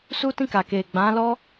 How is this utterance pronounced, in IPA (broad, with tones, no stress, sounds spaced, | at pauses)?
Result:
s u˦ t ĩ˦˨ k a˨ k e˨ ɡ͡b ã˨˦ l ɔ˦